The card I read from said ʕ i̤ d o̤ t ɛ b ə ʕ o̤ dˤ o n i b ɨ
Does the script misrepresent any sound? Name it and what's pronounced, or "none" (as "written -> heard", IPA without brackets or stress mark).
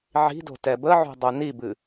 none